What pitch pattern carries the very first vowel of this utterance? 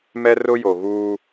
high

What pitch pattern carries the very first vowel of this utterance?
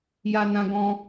high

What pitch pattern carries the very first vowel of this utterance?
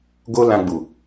high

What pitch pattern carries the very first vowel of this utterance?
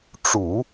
low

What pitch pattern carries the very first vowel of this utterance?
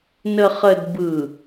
low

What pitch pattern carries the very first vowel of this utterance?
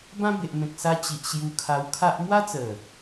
high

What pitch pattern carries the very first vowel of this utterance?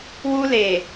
high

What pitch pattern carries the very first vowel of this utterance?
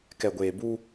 low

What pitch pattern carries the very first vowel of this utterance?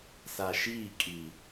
low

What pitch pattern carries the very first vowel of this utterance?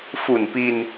low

